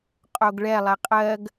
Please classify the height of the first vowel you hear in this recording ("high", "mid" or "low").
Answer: mid